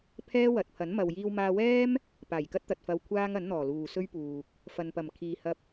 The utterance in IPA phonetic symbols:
pʰ ɛː˥ w ɐ˨ t̚ pʰ ɐ˨˥ n m ɐ˨ w j iː˧ w m aː˧ w ɛː˥ m | p aː˨˩ j k ɐ˥ t̚ t̪ ɐ˨ t̚ f ɐ˧ w kʷʰ aː˥ ŋ ɐ˨˥ n n̪ ɔː˨˩ l uː˨ s ɵ˥ ɥ p uː˨ k̚ | f ɐ˨ n p ɐ˨˩ m kʰ iː˨ h ɐ˧ p̚

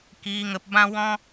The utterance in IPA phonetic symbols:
k iː˨ ŋ ə˨ p b ã˧ w ɔ̃˧

